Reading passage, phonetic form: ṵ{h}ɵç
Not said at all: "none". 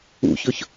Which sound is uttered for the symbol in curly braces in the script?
ç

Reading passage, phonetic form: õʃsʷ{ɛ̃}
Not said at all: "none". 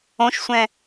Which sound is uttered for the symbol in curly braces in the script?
ɛ̃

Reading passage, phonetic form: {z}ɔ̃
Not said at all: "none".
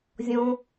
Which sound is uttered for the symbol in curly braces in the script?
zʲ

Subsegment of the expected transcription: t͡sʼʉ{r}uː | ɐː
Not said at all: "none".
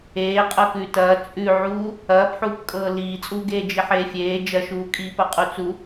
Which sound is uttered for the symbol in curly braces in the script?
ʕ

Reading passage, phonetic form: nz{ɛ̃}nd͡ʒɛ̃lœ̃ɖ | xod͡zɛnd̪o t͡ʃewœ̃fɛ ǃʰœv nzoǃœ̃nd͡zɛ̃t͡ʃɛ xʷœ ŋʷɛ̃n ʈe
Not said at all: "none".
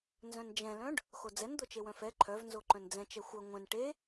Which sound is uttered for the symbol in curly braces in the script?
œ̃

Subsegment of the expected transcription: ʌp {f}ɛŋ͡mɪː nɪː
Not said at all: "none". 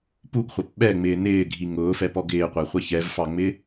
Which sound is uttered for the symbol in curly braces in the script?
ɓ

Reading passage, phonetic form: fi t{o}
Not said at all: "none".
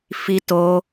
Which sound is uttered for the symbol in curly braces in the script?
o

